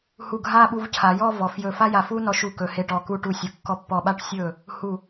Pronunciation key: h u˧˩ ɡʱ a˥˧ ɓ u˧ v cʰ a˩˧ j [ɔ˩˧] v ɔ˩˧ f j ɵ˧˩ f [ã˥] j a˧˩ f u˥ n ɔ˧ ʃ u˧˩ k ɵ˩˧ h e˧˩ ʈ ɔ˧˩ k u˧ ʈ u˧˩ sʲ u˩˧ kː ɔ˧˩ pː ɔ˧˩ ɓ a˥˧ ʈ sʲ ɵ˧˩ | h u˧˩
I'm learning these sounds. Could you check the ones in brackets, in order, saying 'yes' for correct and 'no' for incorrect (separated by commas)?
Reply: no, no